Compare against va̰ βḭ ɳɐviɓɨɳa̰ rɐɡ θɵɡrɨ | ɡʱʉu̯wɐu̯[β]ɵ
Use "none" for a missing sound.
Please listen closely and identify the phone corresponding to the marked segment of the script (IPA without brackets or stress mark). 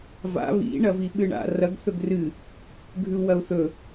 θ